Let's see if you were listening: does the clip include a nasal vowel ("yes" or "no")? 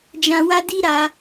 yes